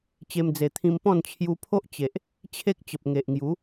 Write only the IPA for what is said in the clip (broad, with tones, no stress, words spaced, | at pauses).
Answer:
t͡ɕe˧m d͡ze˨˩t̪ʰĩ˧mpɔ̃˥˧n t͡ɕʰju˧pʰo˦ʔ t͡ɕe˨ʔ | t͡ɕʰe˦k̚t͡ɕə˨p̚ ŋe˨ʔŋju˨˦